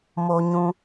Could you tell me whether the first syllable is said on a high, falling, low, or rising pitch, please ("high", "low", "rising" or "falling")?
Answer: low